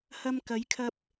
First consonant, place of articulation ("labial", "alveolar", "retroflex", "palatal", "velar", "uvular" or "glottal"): glottal